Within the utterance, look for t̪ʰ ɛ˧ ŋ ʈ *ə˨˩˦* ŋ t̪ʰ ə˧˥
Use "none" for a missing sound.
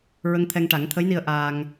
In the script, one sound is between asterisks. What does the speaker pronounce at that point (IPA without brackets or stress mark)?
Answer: a˨˩˦